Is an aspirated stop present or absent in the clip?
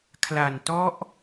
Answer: present